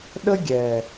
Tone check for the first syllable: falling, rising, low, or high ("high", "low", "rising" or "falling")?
high